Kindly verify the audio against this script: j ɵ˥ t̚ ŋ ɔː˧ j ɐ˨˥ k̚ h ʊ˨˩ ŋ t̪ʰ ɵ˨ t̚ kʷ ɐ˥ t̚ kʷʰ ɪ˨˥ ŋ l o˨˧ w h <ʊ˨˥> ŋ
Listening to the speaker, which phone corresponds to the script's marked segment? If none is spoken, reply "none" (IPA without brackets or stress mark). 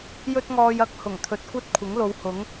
ʊ˨˥